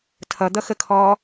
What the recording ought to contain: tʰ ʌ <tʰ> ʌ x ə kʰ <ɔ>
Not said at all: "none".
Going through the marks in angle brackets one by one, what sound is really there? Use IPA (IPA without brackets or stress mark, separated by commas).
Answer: d̪, ɔː